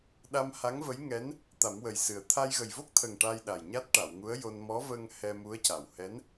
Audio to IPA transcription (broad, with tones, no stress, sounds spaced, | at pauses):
ɗ a˧ m h a˧˥ ŋ v ə˧˥ j ŋ ɛ˧˥ n | t̪ a˨˩˦ m w ə˨˩ j s ɨ˨˩ ə̯ t̪ʰ a˧ j ɣ ə˨˩ j v o˦˥ k̚ t̪ʰ ə˨˩ ŋ ʈ a˧ j ɗ a˨˩ j ɲ a˦˥ t̚ ʈ a˨˩˨ w ŋ u˧˥ ə̯ j o˧ n m ɔ˧˥ v ə˧ ŋ h ɛ˧ m u˧˥ ə̯ c a˨˩ w h ɛ˧˥ n